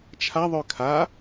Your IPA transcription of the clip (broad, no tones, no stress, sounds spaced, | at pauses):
t͡ʃʰ a ðˤ ø kʰ a